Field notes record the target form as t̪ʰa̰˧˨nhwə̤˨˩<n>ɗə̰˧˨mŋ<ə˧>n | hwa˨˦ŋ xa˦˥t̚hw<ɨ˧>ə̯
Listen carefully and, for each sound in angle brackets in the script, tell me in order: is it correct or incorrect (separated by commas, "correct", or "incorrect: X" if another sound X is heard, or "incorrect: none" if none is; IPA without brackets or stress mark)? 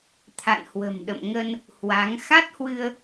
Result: incorrect: m, correct, correct